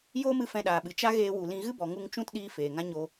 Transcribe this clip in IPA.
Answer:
j oː˦ m ɨ˧ f ɛ̃˧ ɗ aː˨ ɓ ɨ˨ t͡ʃ a˦ ɣ eː˧ w u˨ l ĩ˧ ɣ ɨ˦ b ɔ˨ ŋ u˧ ŋ t͡ʃ ũ˦ t ɗ iː˧ f eː˨ ŋ ã˦ ɲ o˧

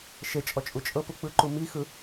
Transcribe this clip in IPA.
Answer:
ʃ e t͡ʃʼ ɔ t͡ʃʼ u t͡ʃʼ ɤ p u k͡p ɯ ǃ u m i x ɯ

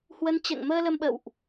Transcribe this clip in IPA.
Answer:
h w ə˨˦ n t͡ɕ ɛ̰˧˨ ŋ m əː˧ l ə˧ m ɓ ə̰˧˨ w ʔ

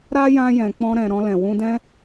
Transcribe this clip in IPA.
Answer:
ɾ a˦ j ã˧ j ɛ̃˨ k͡p ɔ̃˧ ɾ ɛ̃˨ ɾ ɔ̃˧ l ɛ̃˨ w ũ˧ d ɛ̃˦

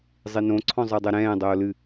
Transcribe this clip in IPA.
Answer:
zˤ i n õ ǀʰ ɔ̃ zˤ ə˞ dˤ ɛ ɾ ɛ̃ː dˤ oː l ɨ

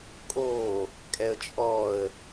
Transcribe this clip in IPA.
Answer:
kʼ o | kʼ ɛ ə̯ t͡ʃʼ ɔ ə̯

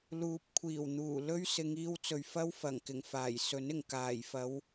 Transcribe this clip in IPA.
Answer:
l uː˨˥ p̚ kʷʰ iː˨˩ w n̪ uː˨˩ l ɵ˥ ɥ s ɪ˨˧ ŋ iː˧ w t͡s ɵ˨ ɥ f ɐ˥ w f ɐ˨˩ ŋ k ɪ˨˩ ŋ f aː˨˩ j s ɵ˨˥ n ɪ˨˩ ŋ k aː˨˩ j f ɐ˨˧ w

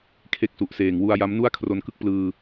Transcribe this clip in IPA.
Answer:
kʰ e˦˥ k̚ s u˨˩ ʔ s eː˨˩ ŋ w u˧ a̯ j a˦˥ m n u˥˩ a̯ kʰ r o˧ n k ɯ˥˩ k̚ p l ɯː˧

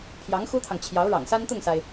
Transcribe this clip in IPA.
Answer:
pʰ j ɑ˧˥ ŋ x u˥ t̪ʰ ɑ˨ ŋ t͡ɕʰ j ɑ˧˥ ʊ̯ ɻ ɑ̰˨˩ ŋ s a˥ n t̪ ʊ˥˩ ŋ s a˩ ɪ̯

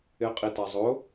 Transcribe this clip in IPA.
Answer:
ɪ qʼ i t a zˤ ʊ

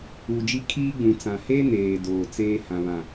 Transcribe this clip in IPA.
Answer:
u˨ d͡ʒ i˦ kʰ iː˦ ɡ͡b ũ˨ t͡s ã˨ h e˦ n eː˨ d oː˨ t͡s eː˦ h ã˨ β ã˨

